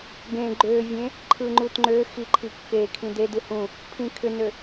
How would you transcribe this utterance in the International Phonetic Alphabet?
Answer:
ɡ ẽ ɡ͡ǃ ø vʲ ẽ | ǃʰ ɯ ŋ͡ǃ u t ŋ͡ǃ ø x i ǃʰ i kː e kʰ ĩ d e d ɯ h ũ | pʰ ĩ kʰ ʏ n ø

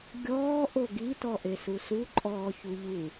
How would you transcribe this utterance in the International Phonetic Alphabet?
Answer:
ɡʲ ɔː ʔ o ɡ i t ɔ ʔ e s u s u ǃʼ ɔː ç u ʎ u

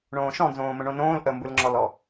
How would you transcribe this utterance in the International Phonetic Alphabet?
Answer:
ɳ õː ʃ ɔ̃ n z õː m ə̃ ɳ õ n õː l ʔ ə m b ɯ l ŋ͡ǁ ɔ l ɔ

